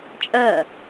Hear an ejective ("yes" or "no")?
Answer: yes